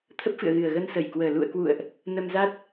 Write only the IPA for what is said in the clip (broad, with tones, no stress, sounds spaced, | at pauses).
t̪ʰ ə˦˥ p̚ f ɨ̰˧˨ ə̯ ɣ ɨ˨˩ ə̯ ɣ ə˧ n s ə˧˩ j k w əː˨˩ l ṵ˧˨ ə̯ k w ṵ˧˨ ə̯ ʔ | n ə˧ m z a˦˥ t̚